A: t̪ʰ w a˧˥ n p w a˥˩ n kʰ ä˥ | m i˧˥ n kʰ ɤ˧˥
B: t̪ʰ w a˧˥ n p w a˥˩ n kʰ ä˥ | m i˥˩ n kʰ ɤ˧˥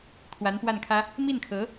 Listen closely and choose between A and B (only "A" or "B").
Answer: B